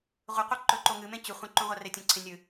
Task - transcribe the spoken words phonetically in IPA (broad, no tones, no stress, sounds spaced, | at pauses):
ʁʷ ɨ qʷ ɨ ǃ ɵ ǃ o ŋ ɨ m ẽ t͡ɕ ʉ χʷ ẽ ǃ ũ ʁʷ a r e tʲ ɐ̃ ǀʰ ẽ nʲ ɨ